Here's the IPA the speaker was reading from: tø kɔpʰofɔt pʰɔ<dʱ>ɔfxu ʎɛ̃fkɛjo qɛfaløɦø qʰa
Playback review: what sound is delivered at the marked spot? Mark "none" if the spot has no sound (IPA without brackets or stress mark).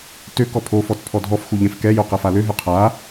dʱ